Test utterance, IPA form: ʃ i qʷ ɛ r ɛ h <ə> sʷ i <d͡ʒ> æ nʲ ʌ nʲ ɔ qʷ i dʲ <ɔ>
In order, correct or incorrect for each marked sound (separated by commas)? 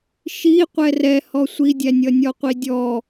incorrect, incorrect, correct